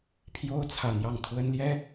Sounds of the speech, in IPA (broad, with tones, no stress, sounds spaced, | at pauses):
pʰ j o˥ ʊ̯ t͡sʰ ä˥˧ n̪ j ɑ˥˩ ŋ t̪ʰ w ə˥ n l j ɛ˥